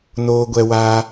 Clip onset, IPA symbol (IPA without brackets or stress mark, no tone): n